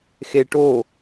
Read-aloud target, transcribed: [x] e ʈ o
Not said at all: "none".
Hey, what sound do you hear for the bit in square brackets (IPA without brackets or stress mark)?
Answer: x